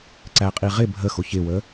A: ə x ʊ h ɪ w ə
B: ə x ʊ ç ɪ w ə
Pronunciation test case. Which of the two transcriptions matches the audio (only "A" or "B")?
B